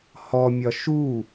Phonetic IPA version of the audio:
hɔmʲɒ ʃu

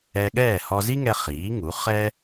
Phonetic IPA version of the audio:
ɛ˧ɠɛː˥˩ hɔ˧zi˥ŋɛ˧ χiː˩˥ŋu˩˥ χɛ˥

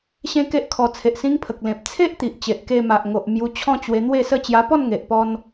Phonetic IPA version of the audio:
ɕẽ˦ke˦ʔkʰɔ˧ t͡sʰe˨ʔsĩ˧ŋpʰə˨k̚ lẽ˨p̚ t͡sʰe˦ʔt̪i˨ʔ t͡ɕe˨ʔ ke˧ma˨ʔ ŋo˨ʔmju˧t͡ɕʰɔ̃˦ t͡ɕwe˧n̪we˥˧sə˥˧ t͡ɕja˧pɔ˥˧nŋe˨ʔpɔ˧n

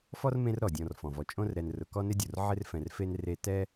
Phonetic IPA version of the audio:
fɔ˥rmẽ˦r ɾɔ˩dʲɔ̃˨r fɔ̃˩vɔ˨ t͡ʃʼõ˦rɾɛ˨nrʊ˨ kɔ˥nɪ˥dʲo˩r ʕɪ˦rfɛ̃˨rfe˦n re˦ tɛ˥

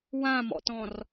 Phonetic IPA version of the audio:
wãmɔ̰tɔ̃r

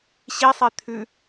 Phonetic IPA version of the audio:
ɕisˤe t̪ʰʉ

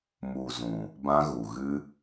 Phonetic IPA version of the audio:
mu˨zũ˨ | bã˧ɣu˨ ɣɨ˧

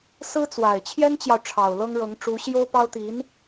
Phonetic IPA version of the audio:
sɹ̩˥t͡swa˨˩ɪ̯ t͡ɕʰjɛ˥nt͡ɕjɑ˨ʊ̯ ʈ͡ʂʰɑ˨˩ʊ̯lɤ˥ŋɻɤ˧˥ŋ ʈ͡ʂu˧˥ɕjo˥ʊ̯pɑ˥ʊ̯ t̪i˧˥n

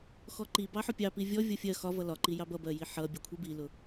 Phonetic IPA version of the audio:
xɔǃib ɑħʊpʲɑ pivʲɔ vʲʌfʲɜ xɒvʌ lɒǃijɑb ʌbɜji ħʌ bʲʌkʷʰibilʊ

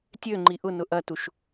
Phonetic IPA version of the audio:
tʲøŋ͡ǃi ʔʊnʊ ʔɐtuʃ

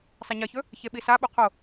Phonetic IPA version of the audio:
sˤeɲɐçɵ | çeɓisaɓu qʰo

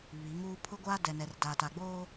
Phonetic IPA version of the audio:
βi˨˦ŋuː˦ pʰʊ˦ɡʷaː˦ dɛ˨nɛ˨rdaː˨ ta˨ɡ͡boː˦

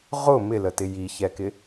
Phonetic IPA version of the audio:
ʁʊ mɪlətɪ jiçɛkɪ

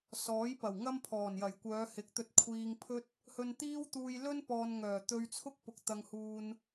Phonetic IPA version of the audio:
sɔː˨˥jpɐ˨˩wŋɐ˥m pʰɔː˨˩njɐ˨˩j kʷœː˨˧hɪ˨k̚t̪ɵ˧t̚ kʷʰiː˧ŋ pʰɵ˥t̚ | hɵ˧nt̪iː˥wt̪uː˧j lɵ˥n pɔː˧n ŋœː˨˩t̪ɵ˧ɥt͡sʰʊ˥k̚pʊ˨k̚ t̪ɐ˧ŋhuː˧n

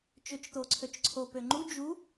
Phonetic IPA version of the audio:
t͡ʃøt͡ʃt̪oǀʰøt͡ʃǀʰo pøŋ͡ǃu d͡ʒu

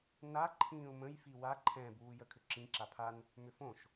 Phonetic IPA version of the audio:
na ǃʰĩːʊ̯mə̃j fiwa ǃʰɛ̃ buːjəkʰʏǁĩ ǁapʰan | mʏfõʃ

